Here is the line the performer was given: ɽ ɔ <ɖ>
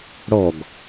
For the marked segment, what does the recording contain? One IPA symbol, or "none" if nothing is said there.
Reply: ɡ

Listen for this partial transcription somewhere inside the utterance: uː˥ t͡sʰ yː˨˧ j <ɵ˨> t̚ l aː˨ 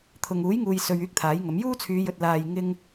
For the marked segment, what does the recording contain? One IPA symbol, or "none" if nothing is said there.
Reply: ɵ˨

